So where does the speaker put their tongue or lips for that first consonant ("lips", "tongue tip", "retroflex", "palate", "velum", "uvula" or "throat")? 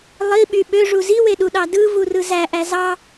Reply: tongue tip